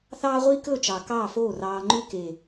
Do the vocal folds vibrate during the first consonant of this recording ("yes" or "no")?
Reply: no